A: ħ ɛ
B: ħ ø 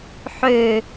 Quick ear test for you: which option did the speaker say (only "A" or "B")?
B